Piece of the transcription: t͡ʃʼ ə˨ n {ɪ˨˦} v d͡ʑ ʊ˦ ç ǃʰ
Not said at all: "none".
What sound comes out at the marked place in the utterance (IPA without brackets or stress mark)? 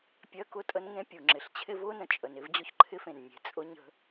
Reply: ɪ˦